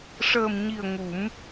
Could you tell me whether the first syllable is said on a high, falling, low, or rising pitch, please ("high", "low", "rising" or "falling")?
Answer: low